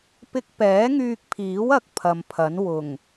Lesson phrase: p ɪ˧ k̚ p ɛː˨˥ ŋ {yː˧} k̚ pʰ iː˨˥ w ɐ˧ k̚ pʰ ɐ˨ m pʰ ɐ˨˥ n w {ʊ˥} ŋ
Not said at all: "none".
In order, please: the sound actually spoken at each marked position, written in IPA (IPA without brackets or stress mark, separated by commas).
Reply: yː˧, ʊ˨˩